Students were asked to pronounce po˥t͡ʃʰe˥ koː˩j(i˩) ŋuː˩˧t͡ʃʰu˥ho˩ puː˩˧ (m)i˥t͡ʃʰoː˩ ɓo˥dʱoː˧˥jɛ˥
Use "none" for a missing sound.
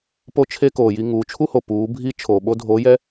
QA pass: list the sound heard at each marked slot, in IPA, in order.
i˧, bʱ

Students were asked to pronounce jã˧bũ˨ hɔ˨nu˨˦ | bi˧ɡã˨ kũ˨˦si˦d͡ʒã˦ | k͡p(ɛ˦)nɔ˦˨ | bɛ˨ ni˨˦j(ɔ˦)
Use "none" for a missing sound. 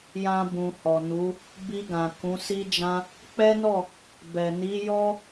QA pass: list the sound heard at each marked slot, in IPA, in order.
ɛ˦, ɔ˦

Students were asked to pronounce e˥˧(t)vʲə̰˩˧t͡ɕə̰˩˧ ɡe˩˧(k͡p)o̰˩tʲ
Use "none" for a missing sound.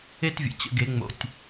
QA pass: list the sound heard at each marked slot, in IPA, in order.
t, ŋ͡m

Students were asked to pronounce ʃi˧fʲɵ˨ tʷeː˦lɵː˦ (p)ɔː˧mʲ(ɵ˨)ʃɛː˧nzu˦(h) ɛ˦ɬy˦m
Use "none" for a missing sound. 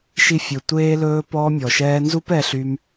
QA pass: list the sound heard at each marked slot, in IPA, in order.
p, ɔ˨, p

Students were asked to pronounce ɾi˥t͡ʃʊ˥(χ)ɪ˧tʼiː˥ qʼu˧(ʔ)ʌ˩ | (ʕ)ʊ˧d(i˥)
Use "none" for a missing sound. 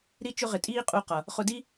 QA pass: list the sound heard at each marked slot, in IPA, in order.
ʁ, q, χ, i˥

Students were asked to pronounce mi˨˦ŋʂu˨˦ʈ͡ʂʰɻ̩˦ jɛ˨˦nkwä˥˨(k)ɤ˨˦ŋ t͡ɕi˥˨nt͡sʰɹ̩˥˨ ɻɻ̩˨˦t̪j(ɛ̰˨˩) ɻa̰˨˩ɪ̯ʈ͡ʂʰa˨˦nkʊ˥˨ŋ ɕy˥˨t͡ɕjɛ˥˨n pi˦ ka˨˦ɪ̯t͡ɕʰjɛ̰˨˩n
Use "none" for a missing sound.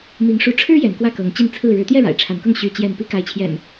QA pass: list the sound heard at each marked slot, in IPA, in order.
k, ɛ˥˨

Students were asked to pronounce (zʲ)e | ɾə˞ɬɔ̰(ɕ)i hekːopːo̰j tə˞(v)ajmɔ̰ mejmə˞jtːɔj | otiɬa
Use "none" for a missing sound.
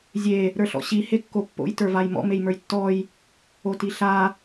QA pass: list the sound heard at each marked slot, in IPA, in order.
zʲ, ɕ, v

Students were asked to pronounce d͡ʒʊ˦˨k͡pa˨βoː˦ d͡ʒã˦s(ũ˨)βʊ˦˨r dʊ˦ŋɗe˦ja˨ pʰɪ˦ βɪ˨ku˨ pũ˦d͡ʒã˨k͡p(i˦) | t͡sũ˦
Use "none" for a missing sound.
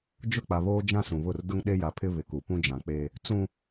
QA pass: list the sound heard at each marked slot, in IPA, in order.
ũ˨, e˦

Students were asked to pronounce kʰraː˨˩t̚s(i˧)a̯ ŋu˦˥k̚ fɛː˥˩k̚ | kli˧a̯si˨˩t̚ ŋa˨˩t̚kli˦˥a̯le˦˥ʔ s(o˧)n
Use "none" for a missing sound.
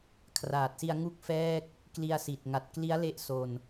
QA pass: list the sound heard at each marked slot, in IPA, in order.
i˧, o˧

